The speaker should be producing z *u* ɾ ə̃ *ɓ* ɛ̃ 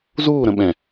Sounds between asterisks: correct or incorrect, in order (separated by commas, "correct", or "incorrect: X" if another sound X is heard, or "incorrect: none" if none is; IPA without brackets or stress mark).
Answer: incorrect: uː, correct